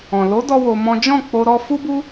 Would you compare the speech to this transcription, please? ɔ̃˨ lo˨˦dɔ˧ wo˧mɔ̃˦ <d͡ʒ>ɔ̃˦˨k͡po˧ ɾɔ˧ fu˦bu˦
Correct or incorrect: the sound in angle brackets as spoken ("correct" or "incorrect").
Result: correct